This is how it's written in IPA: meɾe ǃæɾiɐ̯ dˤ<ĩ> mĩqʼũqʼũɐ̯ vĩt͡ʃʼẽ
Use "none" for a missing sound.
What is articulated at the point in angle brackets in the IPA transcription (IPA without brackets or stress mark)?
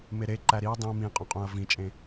ĩ